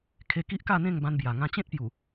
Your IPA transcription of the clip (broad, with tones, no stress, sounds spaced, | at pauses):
kʰ e˧ k i˦ ʔ k a˥˧ n̪ ẽ˥˧ ŋ b ã˧ n b j a˨˩ ŋ ã˧ t͡ɕ ẽ˦ t̚ p j u˨˩